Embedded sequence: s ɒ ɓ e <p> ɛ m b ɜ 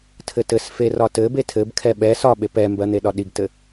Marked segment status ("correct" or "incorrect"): correct